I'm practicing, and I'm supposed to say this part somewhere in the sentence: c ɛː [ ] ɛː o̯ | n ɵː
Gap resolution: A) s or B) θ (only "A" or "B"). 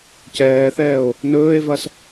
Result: B